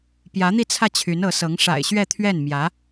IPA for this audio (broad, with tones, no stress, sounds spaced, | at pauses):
p j ä˧˥ n̪ i˥˧ t͡sʰ ä˥˩ t͡ɕʰ y˧˥ n ɤ˧˥ s ɤ˧˥ ŋ ʂ a̰˨˩ ɪ̯ ɕ ɥ ɛ˥˧ t̪ʰ ɥ ɛ˥˩ n m j ä˧˥